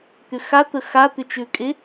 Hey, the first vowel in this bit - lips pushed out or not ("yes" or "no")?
yes